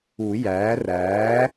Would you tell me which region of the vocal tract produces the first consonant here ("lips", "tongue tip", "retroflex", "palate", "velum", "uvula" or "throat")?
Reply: palate